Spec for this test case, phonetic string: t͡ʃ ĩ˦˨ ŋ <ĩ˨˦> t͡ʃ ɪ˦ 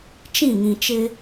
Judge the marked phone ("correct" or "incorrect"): incorrect